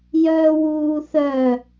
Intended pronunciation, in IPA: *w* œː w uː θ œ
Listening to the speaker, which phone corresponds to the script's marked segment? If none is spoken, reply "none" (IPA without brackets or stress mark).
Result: j